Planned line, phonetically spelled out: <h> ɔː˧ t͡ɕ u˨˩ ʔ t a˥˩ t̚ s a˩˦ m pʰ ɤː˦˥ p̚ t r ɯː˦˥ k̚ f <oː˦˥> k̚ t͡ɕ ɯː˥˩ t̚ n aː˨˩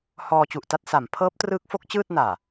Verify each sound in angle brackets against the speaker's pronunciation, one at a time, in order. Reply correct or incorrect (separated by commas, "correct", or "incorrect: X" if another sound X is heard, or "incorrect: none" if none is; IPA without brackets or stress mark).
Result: correct, incorrect: o˦˥